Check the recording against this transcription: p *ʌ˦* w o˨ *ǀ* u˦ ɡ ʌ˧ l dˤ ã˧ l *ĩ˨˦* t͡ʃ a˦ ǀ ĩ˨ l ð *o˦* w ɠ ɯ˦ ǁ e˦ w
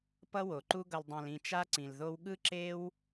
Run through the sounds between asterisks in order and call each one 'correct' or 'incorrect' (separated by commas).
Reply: correct, incorrect, incorrect, correct